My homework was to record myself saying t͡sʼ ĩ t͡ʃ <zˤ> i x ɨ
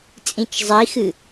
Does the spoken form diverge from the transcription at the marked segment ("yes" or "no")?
no